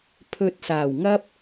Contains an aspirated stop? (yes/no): yes